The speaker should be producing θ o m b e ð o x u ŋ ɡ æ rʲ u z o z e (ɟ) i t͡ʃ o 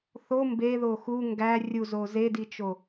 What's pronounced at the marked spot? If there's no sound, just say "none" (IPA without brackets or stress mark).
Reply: d